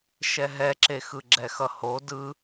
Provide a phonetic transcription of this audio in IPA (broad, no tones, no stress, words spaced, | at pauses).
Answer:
ʃɛɦɛǁe xɯɡ͡ǁɛxʌho dɯ